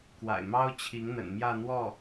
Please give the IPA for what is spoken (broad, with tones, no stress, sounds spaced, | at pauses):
k w a̰˨˩ ɪ̯ m ɑ˥ ʊ̯ t͡ɕʰ i˧˥ ŋ n̪ ə̰˨˩ n m j ä˥˧ n̪ w ɔ˥˩